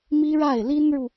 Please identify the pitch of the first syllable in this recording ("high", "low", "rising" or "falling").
high